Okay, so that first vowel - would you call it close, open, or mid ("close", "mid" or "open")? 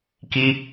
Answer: close